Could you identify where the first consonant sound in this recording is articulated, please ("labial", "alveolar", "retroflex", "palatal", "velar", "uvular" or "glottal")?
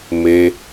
labial